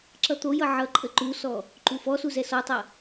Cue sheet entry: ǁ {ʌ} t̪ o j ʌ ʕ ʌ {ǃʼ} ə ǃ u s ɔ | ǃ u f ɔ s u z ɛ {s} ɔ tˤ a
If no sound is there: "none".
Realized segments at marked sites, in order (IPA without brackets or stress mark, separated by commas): ʌ, ǃʼ, s